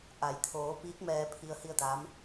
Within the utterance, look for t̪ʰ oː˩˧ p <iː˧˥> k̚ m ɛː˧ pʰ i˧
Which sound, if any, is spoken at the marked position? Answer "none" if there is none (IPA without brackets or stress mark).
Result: iː˧˥